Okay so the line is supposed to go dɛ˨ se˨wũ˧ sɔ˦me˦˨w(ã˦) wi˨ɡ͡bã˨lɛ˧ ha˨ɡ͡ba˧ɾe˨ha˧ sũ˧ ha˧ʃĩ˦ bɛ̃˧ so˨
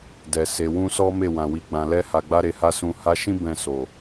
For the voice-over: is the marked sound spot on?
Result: no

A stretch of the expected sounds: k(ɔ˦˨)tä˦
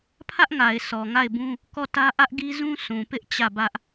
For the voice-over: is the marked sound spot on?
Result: yes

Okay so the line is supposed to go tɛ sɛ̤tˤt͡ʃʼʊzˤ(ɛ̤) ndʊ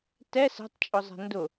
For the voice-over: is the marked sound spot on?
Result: yes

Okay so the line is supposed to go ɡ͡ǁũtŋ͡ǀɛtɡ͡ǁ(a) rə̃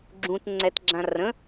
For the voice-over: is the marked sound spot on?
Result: no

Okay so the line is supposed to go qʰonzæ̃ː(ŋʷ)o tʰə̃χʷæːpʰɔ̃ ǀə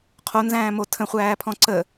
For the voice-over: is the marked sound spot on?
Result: no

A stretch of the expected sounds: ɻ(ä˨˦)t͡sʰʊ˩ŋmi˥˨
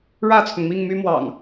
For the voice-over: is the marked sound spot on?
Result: no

